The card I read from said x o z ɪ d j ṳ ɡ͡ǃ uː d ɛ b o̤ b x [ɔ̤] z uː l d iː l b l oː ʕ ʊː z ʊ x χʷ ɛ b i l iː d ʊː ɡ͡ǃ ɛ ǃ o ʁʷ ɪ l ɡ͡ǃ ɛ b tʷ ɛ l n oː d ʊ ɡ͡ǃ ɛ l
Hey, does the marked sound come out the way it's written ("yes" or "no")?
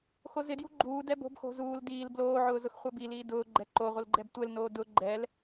no